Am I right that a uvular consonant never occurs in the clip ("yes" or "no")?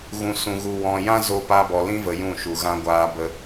yes